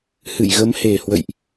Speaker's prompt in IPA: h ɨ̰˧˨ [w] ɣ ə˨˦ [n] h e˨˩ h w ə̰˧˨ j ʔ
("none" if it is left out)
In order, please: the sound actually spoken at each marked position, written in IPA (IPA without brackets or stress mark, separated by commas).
j, m